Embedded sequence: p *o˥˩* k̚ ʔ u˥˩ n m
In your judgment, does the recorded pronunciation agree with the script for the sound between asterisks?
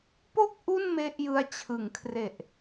yes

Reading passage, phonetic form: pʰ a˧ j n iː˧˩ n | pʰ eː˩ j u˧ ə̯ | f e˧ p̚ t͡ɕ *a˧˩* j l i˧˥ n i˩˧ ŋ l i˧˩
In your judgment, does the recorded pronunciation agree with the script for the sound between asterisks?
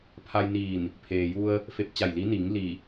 yes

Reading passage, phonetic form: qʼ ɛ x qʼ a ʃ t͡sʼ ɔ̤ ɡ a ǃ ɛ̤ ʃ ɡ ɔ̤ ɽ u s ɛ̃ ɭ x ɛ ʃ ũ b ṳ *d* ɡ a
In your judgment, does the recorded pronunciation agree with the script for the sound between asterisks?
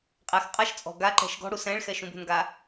no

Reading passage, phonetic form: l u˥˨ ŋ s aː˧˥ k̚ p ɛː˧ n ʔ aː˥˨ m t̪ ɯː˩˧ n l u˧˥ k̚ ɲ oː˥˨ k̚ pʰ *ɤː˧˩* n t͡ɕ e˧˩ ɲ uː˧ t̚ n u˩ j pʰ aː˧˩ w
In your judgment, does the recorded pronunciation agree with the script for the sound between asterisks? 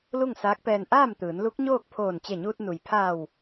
no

